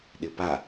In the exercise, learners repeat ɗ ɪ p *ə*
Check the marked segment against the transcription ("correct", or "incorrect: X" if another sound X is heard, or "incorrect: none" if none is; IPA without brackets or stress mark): incorrect: a